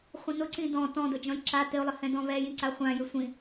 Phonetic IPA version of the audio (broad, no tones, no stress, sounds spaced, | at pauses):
χʷ ĩ n ʊ ǀ ĩ d ɔ̃ t ɔ̃ d ʊ d͡ʒ ɔ̃ j ǁ a t ɪ ʊ̯ lˠ ɪ h ɛ̃ d ɔ̃ β ɛ j ĩ ǀ a χʷ ã j ɪ sʷ ĩ